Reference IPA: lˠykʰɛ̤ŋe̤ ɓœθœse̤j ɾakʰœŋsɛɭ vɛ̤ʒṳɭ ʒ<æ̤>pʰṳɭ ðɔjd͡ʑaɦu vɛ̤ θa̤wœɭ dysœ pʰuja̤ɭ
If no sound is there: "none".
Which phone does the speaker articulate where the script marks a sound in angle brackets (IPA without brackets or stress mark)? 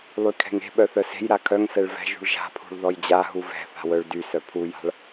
a̤